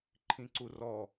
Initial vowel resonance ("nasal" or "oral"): nasal